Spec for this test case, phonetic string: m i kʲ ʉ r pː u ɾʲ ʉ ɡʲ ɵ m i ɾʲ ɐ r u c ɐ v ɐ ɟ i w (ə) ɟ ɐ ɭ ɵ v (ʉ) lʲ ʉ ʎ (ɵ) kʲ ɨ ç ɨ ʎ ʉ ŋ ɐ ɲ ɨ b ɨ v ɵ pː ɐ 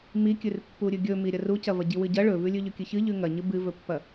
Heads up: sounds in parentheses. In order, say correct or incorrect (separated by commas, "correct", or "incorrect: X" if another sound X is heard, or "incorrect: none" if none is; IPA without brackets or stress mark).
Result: incorrect: ɨ, correct, correct